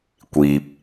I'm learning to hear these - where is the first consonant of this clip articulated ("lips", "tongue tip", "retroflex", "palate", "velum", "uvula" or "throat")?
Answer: velum